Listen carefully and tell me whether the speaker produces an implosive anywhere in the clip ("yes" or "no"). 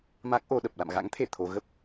yes